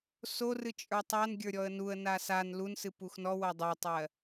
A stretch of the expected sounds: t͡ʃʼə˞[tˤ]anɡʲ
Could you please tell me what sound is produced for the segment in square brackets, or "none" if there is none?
tˤ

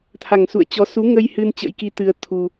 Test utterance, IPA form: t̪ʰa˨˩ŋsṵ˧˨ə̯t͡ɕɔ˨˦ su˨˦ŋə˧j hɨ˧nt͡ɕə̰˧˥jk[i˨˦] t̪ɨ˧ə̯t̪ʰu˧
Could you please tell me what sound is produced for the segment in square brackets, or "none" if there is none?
i˨˦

